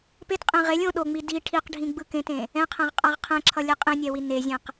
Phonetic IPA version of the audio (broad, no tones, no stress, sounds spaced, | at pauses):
p e t qʼ ẽ ʁ e lʲ õ ɗ o ŋ͡m i d i ʈʰ i q ɖʱ ĩ ɡ͡b ɯ k ẽ t ẽ | ɛ̃ qʰ ɛ̃ ʁ qʼ a ʁ qʰ ɛ̃ ǁʰ ʌ lʲ ɛ qʼ ẽ nʲ ɛ w i n e zʲ ɛ̃ q